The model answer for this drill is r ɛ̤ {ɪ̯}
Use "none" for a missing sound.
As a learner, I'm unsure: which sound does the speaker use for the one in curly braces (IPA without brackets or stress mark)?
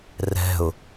ʊ̯